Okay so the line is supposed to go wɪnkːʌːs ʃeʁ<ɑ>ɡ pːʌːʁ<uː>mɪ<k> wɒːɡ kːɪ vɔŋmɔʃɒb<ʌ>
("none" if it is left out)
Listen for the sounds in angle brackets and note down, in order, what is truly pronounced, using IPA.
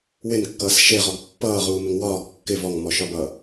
ɔ, uː, ŋ, ʌ

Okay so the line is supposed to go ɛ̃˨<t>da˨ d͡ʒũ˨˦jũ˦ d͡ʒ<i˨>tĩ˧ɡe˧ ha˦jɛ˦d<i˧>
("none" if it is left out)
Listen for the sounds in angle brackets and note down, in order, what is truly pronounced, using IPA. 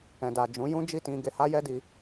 none, i˦˨, i˧

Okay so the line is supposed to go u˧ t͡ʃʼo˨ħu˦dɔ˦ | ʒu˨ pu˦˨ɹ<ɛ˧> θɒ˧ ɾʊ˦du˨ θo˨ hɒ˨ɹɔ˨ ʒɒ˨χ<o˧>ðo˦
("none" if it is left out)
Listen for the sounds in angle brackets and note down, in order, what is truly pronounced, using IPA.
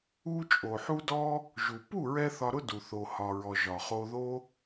ɛ˧, o˧

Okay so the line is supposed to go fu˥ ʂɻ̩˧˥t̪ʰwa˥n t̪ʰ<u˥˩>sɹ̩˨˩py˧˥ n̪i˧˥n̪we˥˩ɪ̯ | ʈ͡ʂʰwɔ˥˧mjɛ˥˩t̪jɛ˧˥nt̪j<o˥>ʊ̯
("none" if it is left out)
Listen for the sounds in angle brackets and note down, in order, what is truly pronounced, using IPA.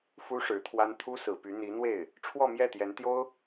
u˥, o˥

